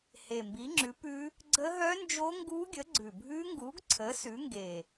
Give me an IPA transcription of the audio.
h e˨˩ m b i˨˥ ŋ͡ǁ ʉ˨˥ p ʉ˦˥ | ɡ͡ǀ ə˦˥ ɦ œ˦˥ n d͡ʒ o˦˥ ŋ ɡ u˦˥ ɡʲ ə˨˥ ɡ͡ǀ ʉ˨˩ bʱ ʉ˦˥ ŋ ɡ u˨˥ ɡ ǀʰ ə˨˥ s ʉ˨˥ ŋ ɡ e˨˩

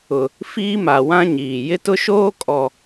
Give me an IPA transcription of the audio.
ʊ˨ | f iː˦ m a˨ w ã˦ ɲ iː˨ j ɪ˦ t ʊ˦ ʃ oː˦ kʼ ɔ˨

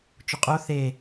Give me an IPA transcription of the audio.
t͡ʃ ʊ qʼ o θ e

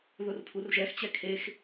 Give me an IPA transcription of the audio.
ð ʊ r pʰ u r ʒ ɛ x t͡ɕ ɛ kʰ e x

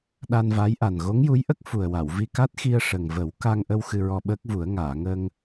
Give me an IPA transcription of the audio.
ɗ a˧ n v a˧˥ j ʔ a˨˩ n ɣ o˧˥ ŋ j u˧˥ j ʔ ə˦˥ k̚ f u˨˩ ə̯ w a˨˩˨ w v i˧ k a˦˥ t̚ x i˧ ə̯ ʂ ə˨˩ ŋ v ə˨˩˦ w k a˧ ŋ ʔ ə˧ w x ɨ˧ ɹ ɔ˧ ɓ əː˦˥ k̚ v u˨˩˦ ə̯ ŋ aː˨˩˨ ŋ əː˧ ŋ

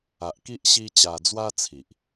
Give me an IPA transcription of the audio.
a˨ ʔ k i˦ ʔ ɕ i˦ t͡ɕ a˧ d͡z w a˦ t͡sʰ i˨ ʔ

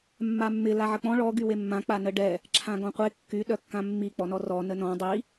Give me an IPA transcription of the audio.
mː a mː ɪ l a ʕ ə k͡p ɔ̃ ɭ ɔ ɡ y w e mː ã k͡p a n ə ɖ ɛ | ǁʰ ã ɡ ɔ̃ qʷ e kː y ɗ œ kː ã mː i k͡p ɔ n ɔ r ɔ n ə n ɔ̃ dˤ i

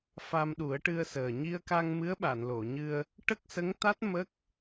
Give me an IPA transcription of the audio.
f a˧ m ɗ u˨˩˦ ə̯ ʈ ɨ˧ ə̯ s əː˨˩ ɲ i˧ ə̯ k a˧ ŋ m ɨ˧˥ ə̯ ɓ a˨˩˨ n l o˨˩˨ ɲ ɨ˧ ə̯ | ʈ ə˦˥ k̚ s ə˧˥ ŋ t̪ a˦˥ t̚ m ə˦˥ k̚

